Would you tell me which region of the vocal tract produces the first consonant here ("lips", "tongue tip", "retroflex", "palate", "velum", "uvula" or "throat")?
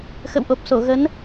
velum